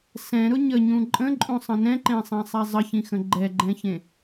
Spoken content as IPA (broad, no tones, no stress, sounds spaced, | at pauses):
s ɛ̃ ɾ ʊ ɲ ə ɲ ũ ǃʼ ə̃ ǃʼ ũ sˤ ə̃ n ɛ̃ ǃ ẽ sˤ ɛ̃ sˤ ɛ zˤ ə ç ĩ x ə̃ ɡ͡ǃ ɛ ɡ͡ǃ ɛ̃ ç ẽ